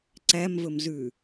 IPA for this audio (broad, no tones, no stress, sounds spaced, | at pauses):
ǀ æ m v ɵ m z ʉ